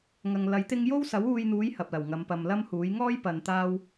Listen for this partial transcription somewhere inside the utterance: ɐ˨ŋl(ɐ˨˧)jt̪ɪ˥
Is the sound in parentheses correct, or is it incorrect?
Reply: incorrect